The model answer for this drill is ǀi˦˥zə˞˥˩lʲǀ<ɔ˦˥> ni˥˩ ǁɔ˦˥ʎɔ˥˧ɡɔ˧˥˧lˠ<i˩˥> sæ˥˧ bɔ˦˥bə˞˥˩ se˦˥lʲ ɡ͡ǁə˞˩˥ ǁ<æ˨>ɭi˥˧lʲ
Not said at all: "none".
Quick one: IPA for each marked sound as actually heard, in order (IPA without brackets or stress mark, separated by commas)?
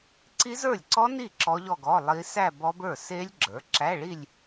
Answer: ɔ˦˥, i˦˥, æ˧˥˧